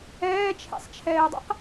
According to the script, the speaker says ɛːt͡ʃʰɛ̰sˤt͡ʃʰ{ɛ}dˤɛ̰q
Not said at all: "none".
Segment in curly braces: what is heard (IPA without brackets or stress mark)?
ɛː